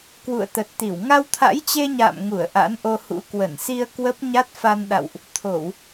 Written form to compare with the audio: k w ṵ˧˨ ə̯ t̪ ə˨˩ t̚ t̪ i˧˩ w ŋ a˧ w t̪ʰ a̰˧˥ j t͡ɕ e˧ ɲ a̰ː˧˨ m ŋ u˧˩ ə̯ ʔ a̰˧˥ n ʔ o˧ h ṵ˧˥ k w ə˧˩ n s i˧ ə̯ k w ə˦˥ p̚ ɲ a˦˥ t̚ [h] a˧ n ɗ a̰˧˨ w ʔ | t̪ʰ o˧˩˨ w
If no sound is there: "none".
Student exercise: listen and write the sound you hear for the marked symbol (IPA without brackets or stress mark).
f